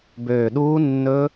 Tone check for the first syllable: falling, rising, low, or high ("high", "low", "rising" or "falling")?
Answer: low